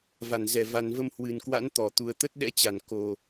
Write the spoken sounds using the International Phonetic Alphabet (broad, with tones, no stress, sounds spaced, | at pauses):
v a˧˩ n z ɛ˧˩ v a˨˩ n v ə˧ m h w ɨ˨˩ n k w a̰˧˥ n t̪ ɔ˧˩ t̪ u˨˩ ə̯ t̪ ə˦˥ t̚ ɗ ɛ̰˧˥ t͡ɕ a˧˩ n k o˨˩